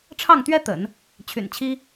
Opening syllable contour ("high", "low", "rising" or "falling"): falling